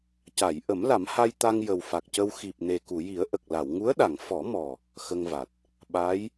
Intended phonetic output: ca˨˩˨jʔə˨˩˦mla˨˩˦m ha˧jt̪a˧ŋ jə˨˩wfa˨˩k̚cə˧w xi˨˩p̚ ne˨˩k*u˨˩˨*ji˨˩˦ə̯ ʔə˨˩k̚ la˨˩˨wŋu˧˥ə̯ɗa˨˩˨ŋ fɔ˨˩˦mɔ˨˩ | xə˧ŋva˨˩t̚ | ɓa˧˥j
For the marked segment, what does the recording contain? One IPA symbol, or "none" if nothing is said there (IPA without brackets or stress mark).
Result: u˨˩˨